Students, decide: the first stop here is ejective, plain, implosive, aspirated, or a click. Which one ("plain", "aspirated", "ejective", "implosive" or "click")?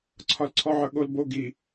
click